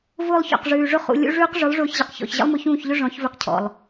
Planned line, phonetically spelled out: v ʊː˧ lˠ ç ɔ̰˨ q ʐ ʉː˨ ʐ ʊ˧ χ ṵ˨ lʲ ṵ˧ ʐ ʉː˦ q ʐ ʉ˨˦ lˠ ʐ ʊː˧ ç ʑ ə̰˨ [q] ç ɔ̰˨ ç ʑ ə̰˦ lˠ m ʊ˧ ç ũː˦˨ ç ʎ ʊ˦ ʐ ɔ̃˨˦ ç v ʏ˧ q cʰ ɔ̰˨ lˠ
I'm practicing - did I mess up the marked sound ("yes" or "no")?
no